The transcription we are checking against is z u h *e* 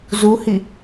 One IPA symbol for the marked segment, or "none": i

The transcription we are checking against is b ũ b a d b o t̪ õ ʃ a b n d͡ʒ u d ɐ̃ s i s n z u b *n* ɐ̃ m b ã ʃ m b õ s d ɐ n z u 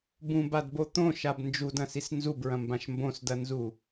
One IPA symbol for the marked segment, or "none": ɹ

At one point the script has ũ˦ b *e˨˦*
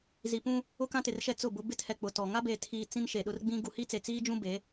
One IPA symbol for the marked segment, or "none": e˨˦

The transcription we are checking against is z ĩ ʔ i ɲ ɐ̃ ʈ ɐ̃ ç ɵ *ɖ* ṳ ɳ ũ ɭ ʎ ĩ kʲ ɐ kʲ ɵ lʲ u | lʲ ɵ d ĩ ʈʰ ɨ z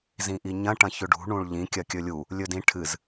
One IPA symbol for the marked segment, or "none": ɖ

